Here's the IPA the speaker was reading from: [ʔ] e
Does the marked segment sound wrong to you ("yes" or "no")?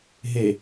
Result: yes